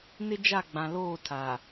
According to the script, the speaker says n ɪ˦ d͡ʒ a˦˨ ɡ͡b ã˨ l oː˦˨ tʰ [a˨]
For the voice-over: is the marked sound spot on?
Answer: yes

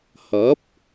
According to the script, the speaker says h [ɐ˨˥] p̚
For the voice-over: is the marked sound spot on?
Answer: yes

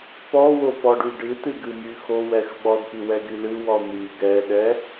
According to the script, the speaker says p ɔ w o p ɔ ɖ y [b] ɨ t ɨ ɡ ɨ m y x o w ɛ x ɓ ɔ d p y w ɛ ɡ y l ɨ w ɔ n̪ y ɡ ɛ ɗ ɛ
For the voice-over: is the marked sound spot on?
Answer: no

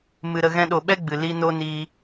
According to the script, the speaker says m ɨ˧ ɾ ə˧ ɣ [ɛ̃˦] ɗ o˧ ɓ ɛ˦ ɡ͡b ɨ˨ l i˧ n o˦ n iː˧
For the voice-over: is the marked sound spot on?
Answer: yes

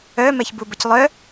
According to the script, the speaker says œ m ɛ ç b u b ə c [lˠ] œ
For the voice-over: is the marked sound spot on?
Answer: yes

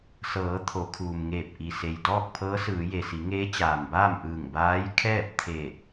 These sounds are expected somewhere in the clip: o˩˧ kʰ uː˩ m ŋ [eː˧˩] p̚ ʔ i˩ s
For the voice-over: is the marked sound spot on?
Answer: yes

